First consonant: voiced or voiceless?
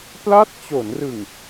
voiceless